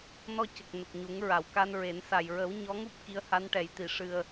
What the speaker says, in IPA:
nɔ˧cə˨˩k̚ nə˨˩k̚ɲu˨˩˦ŋɹa˨˩˨w ka˧nɹe˨˩˦nsa˨˩j ɹə˨˩˦w ɲɔ˧˥ŋu˦˥p̚ ki˧˥ə̯ha˧˥nʈɛ˨˩˦jt̪i˨˩˨ ʂɨ˨˩ə̯

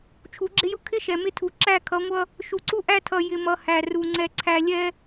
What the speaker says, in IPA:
t͡ʃʰu˨˦ɡ͡ǁɪ˦jʊ˦ kʰɪ˦ ʃɛ˨mɪ˦tʰu˨ ǁæ˦˨kʰʌ˨˦ŋʷʌ˦ | ʃu˨ǀu˦ʔæ˦tʰʌ˨ jɪ˨mʌ˨ hæ˨ru˨ ŋ͡ǀɛ˨ǀʰæ˨lʲɛ˦

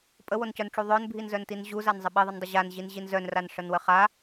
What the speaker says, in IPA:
pʼəwoncœnʈ͡ʂu ðˤœnbʱinzœntin ʑuzanzˤə ɓiðˤəndˤə ʑanʑinʑin zœnranʂənwə χa

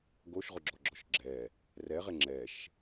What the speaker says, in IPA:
ɡoʃʁʊɡ͡ǁɔɡ͡ǁɔʃ ɡ͡ǁɛ | rɛʁe ŋ͡ǁɛʃ

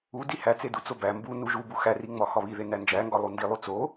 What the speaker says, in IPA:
u dihæt͡sedu t͡sobæ mbu nuʒubu xæriŋ͡mɒ xɒβiðe nænd͡ʒæŋɡɒ lˠundi lˠut͡so

